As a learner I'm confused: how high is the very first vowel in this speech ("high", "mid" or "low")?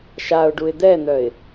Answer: low